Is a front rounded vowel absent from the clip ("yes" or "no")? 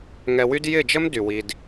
no